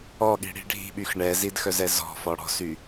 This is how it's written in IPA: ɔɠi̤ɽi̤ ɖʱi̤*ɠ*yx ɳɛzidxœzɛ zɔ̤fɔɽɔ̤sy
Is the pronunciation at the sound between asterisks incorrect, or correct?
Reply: incorrect